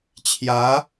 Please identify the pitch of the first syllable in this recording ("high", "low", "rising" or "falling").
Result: rising